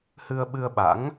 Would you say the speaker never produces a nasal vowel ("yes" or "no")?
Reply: yes